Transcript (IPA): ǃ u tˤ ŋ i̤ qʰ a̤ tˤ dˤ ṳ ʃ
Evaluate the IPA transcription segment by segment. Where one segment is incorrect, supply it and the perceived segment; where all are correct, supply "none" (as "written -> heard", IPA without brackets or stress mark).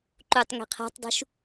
none